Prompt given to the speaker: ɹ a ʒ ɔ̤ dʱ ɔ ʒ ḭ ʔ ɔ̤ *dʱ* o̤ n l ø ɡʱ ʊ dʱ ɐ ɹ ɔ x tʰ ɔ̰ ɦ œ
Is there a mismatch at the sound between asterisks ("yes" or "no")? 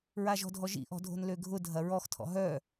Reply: no